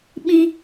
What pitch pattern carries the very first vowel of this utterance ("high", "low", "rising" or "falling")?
high